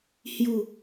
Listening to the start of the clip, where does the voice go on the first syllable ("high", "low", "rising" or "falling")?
falling